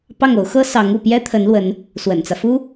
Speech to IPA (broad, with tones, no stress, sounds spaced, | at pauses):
p ɑ˥˩ ŋ o˧˥ ʊ̯ x ɤ˥ s ɑ˧˥ ŋ u˥˩ p j ɛ˥ t̪ʰ ə˧˥ n l w ə˧˥ n | s w ə̰˨˩ n t͡s ä˦ f u˥